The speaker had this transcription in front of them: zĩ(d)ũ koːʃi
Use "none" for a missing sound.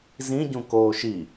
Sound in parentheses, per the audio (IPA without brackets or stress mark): ɟ